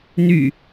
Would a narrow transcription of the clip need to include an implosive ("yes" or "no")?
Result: no